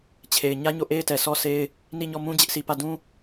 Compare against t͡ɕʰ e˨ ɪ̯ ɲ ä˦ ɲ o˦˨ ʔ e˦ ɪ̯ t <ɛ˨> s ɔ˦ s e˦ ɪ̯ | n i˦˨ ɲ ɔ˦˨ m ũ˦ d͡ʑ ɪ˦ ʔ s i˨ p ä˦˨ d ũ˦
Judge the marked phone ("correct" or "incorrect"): correct